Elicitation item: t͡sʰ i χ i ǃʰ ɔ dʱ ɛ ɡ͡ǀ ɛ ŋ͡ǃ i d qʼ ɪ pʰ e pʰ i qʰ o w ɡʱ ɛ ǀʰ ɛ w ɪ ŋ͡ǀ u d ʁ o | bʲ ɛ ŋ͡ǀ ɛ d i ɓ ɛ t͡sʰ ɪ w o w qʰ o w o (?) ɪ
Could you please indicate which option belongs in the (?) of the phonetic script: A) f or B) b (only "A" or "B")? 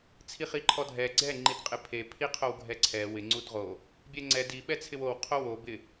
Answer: B